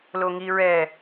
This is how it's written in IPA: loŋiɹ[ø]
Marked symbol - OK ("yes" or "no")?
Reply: no